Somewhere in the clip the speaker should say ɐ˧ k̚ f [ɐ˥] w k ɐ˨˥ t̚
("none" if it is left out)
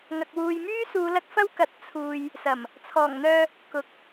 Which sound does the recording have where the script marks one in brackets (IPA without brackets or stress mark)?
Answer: ɐ˥